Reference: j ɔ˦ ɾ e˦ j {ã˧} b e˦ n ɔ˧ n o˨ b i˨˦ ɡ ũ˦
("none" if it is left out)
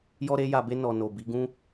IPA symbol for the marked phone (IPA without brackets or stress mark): a˧